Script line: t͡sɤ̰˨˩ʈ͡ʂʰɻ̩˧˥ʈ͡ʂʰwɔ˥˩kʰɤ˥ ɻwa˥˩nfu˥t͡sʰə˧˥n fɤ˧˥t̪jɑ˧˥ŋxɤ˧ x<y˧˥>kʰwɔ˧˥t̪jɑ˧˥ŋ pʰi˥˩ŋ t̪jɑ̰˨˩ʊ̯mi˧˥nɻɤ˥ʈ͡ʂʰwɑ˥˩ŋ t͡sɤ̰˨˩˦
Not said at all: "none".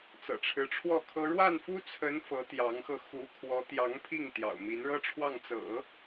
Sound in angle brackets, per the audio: u˧˥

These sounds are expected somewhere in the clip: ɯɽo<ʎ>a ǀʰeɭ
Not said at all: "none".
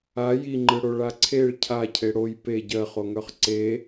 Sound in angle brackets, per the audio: ɭ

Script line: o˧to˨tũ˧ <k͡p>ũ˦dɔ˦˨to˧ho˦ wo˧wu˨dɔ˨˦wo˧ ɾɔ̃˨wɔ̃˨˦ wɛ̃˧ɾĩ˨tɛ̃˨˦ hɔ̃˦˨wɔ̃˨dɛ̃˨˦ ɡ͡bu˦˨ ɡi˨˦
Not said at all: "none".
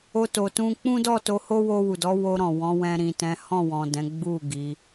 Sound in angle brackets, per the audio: k͡p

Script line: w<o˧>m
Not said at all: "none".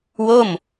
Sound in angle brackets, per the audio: o˥˩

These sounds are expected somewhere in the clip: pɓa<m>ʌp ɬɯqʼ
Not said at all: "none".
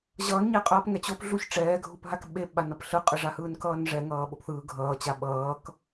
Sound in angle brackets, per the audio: n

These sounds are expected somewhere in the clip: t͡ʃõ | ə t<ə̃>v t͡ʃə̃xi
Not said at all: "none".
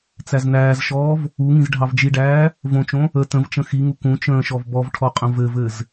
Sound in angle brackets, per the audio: ə̃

